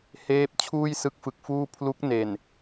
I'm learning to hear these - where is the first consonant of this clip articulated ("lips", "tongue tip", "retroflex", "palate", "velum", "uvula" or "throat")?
throat